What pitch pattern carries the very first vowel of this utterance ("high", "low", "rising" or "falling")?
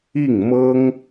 falling